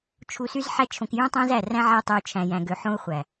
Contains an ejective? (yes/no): no